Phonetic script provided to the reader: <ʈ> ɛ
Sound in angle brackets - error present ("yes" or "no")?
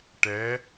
no